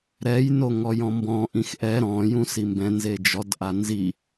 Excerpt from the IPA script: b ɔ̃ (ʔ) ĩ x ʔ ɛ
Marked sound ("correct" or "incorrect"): correct